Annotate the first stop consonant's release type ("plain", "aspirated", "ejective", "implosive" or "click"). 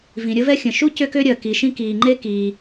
plain